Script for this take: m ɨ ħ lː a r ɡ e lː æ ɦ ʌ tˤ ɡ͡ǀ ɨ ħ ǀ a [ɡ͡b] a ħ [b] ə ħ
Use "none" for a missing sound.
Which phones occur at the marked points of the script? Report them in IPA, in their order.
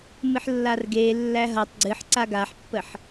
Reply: ɡ, pː

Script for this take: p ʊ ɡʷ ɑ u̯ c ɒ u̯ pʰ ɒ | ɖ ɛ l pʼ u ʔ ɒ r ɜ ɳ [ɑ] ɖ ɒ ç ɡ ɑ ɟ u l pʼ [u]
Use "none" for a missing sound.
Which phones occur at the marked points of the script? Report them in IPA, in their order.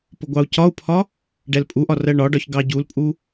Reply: ɒ, u

